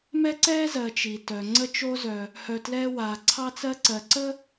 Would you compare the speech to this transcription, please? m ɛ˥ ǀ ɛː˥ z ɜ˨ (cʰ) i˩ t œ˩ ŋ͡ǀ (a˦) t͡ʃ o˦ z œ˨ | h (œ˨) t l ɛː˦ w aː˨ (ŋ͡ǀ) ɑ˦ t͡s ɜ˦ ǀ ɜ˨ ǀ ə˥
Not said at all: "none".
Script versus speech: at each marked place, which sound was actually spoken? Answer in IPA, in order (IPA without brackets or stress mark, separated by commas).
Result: t͡ʃ, ə˦, œ˨, ǀʰ